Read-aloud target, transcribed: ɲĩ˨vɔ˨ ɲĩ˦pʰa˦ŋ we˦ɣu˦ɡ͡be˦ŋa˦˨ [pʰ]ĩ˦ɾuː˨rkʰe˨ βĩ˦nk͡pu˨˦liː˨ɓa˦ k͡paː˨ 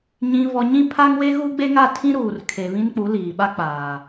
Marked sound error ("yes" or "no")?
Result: yes